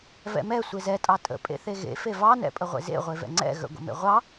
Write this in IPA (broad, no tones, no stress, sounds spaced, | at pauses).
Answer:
v ɛ̰ m ɛ sʷ e z ɛ tʼ ɑ tʼ ə̰ pʼ ḛ θ e ɣ ḛ f e v ɑ n ɛ̰ pʼ ə ʁʷ ḛ z ḛ ʁʷ e v ɛ̰ ŋ͡ǀ ɛ̰ ɣ ə̰ ɡʷ ə̰ m ḛ ʁʷ ɑ